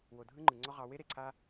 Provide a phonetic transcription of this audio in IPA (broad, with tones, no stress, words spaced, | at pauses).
wo˨dʱɯ˦ŋ͡ǃɯ˨ŋ͡ǀɔ˦ ʁɑ˦ we˦ɾe˨ǀʰa˦